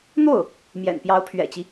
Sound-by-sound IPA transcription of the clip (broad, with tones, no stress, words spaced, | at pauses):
n̪o˥˩ʊ̯ | mjɛ̰˨˩npjɑ˧˥ʊ̯pʰɥɛ̰˨˩t͡ɕi˦